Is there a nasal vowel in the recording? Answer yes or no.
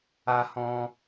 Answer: yes